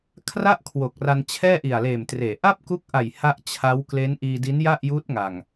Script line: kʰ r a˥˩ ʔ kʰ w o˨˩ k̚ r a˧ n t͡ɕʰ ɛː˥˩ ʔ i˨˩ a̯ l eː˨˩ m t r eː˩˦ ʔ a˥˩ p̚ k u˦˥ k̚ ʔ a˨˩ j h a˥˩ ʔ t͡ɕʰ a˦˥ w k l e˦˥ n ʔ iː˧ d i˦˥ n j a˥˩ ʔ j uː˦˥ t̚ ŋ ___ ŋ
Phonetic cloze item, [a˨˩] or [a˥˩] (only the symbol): a˨˩